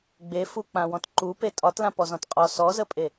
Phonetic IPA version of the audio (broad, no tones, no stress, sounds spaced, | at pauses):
ɡ͡b e f u k͡p ã w ɔ̃ t ǃ u p e tʼ ɒ t l ã p ɔ z ɔ̃ t qʼ ɔ s ɔ z ə pʼ e